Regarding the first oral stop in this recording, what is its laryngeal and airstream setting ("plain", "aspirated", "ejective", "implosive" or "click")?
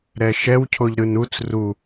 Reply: aspirated